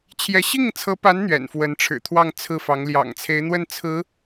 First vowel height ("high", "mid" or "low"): mid